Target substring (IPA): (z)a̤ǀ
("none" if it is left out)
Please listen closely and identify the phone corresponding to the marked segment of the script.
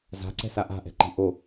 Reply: z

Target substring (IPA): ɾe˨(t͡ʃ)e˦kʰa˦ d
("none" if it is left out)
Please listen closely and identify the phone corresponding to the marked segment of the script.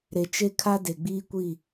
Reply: t͡ʃ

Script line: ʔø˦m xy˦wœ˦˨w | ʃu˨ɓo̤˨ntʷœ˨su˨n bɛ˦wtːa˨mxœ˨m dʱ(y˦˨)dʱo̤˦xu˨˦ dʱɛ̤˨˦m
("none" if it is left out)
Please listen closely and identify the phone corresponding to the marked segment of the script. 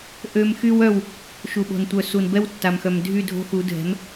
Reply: y˦˨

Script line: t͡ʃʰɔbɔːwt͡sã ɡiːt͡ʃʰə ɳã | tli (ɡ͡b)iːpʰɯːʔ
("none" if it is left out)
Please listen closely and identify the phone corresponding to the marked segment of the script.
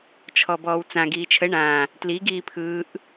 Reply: ɡ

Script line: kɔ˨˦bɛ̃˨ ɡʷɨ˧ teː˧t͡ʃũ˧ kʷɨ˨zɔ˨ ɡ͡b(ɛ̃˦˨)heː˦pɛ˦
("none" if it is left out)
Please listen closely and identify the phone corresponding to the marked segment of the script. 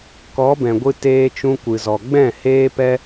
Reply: ɛ̃˦˨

